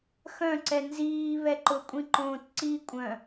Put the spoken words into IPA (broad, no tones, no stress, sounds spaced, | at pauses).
x œ̃ ǀ ɛ n z iː β ɛ ǃ ʊ kʷʼ ĩ ǃ õː t ǀ i kʷʼ œ̃